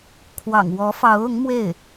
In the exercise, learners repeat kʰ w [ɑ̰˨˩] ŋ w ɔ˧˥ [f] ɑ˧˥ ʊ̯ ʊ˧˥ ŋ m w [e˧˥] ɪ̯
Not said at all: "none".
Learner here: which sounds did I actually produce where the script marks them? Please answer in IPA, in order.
ɑ̰˨˩, f, e˥˩

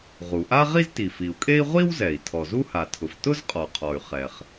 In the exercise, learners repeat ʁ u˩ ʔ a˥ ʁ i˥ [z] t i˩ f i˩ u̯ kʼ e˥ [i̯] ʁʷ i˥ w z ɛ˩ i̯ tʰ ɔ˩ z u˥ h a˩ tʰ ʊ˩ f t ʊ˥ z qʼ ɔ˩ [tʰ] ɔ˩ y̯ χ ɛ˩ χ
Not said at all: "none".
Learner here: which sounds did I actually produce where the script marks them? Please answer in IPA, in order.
z, i̯, qʰ

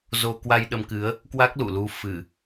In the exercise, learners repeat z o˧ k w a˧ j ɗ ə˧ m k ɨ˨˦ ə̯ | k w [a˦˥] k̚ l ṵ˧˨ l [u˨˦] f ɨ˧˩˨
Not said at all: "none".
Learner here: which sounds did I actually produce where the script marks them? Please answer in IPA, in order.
a˦˥, u˨˦

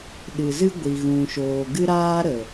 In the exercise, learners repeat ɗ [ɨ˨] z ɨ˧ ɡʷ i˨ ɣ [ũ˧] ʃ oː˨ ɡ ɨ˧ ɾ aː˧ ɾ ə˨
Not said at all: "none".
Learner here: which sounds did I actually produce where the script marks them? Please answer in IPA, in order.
ɨ˨, ũ˨

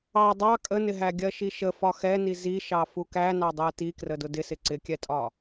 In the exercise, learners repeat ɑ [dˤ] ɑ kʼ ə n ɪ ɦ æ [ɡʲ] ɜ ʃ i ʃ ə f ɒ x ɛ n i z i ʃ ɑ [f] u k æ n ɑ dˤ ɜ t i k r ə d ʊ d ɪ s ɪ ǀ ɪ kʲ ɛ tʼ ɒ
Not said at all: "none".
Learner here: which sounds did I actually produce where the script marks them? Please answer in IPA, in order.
dˤ, ɡʲ, f

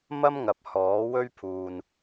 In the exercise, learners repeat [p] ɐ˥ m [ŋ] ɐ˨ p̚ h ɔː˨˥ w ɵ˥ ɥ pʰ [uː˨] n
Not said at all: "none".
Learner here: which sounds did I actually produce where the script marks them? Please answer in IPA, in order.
m, ŋ, uː˨

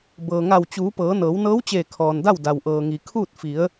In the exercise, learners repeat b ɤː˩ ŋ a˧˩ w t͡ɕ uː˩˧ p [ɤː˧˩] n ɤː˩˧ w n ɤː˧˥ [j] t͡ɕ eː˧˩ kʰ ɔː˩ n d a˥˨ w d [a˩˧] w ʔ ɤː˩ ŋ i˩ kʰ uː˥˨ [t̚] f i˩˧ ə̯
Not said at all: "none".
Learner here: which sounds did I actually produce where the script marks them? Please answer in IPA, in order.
ɤː˩˧, w, a˩, t̚

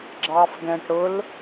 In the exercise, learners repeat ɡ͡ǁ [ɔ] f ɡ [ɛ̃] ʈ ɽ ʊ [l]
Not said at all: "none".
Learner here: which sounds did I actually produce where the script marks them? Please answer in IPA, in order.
ɑ, ɛ̃, l

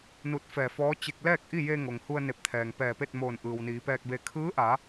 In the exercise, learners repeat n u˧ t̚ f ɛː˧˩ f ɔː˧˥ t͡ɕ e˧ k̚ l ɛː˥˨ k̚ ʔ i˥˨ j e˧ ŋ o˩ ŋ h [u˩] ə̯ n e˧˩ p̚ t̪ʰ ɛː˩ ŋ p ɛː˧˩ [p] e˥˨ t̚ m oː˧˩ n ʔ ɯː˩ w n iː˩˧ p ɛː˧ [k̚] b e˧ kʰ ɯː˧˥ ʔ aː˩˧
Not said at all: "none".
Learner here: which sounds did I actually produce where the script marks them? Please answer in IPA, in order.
u˧, p, k̚

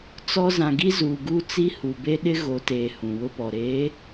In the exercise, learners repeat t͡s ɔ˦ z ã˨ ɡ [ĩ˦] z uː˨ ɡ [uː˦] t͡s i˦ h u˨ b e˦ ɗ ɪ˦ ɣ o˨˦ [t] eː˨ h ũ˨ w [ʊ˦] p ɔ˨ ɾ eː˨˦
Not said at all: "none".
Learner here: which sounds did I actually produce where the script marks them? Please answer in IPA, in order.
i˦, uː˦, t, ʊ˦

